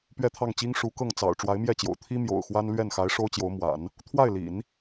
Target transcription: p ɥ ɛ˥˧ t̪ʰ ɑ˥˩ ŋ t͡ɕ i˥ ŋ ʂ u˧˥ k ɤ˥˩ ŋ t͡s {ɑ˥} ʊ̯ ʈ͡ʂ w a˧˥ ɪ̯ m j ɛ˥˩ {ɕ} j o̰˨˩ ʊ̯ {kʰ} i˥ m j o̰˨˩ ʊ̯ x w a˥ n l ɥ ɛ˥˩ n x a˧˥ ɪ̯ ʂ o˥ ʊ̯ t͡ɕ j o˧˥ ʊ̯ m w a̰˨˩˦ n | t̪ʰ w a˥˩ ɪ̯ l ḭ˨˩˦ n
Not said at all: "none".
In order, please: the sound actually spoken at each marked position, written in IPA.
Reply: ɑ̰˨˩, t͡ɕ, t̪ʰ

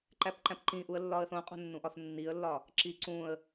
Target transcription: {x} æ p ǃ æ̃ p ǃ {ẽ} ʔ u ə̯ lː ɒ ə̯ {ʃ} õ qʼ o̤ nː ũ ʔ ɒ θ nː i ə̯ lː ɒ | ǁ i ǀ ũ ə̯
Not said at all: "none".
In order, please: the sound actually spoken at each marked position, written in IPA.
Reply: ǃ, ĩ, θ

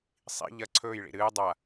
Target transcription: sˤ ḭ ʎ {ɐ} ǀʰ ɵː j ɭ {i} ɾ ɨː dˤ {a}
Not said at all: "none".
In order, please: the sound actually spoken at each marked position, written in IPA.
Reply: ɐ, ḭ, a

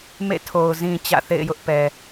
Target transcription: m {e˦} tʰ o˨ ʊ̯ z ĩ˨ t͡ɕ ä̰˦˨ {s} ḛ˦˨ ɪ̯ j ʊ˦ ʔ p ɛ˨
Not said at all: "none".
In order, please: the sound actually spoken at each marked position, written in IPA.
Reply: ḛ˦˨, θ

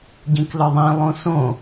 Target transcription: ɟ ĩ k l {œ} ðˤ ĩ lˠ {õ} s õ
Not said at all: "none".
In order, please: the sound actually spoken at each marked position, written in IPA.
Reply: œ, õ

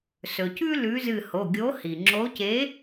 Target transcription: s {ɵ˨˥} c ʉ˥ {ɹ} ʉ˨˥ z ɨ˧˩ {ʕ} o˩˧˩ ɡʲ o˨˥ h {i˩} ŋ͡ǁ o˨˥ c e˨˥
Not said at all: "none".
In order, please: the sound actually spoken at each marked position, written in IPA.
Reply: ɵ˩, l, h, i˩

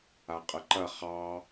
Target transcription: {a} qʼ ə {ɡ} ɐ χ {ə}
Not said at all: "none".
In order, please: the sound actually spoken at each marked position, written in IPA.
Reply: a, ǃ, ɑ

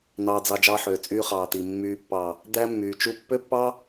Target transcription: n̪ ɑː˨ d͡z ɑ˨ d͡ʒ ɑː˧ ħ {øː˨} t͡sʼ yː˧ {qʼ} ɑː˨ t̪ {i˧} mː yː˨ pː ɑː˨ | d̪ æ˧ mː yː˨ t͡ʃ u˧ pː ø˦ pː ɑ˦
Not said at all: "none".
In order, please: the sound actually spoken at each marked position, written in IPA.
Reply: øː˨, χ, i˨

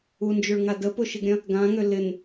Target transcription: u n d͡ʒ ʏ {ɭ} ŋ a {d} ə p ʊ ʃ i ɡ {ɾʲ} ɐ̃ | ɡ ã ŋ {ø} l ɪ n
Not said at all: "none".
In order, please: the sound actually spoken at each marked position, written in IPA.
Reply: ɭ, d, ɾʲ, ø

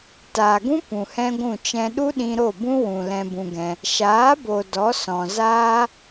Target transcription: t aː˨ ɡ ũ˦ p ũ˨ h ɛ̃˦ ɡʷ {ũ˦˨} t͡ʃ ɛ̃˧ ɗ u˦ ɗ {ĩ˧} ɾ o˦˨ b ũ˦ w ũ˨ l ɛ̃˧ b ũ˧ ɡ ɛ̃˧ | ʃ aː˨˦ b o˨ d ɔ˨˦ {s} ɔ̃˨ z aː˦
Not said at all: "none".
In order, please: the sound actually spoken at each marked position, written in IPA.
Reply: ũ˦˨, ĩ˧, s

